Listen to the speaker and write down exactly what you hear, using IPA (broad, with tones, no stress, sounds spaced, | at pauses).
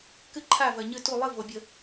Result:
k ɨ˥˨ ǃʰ a˥˨ v ɜ˨ ɲ ɨ˥˨ t u˥˨ lˠ ɨ˥˨ v o˨ bʲ ə˥˨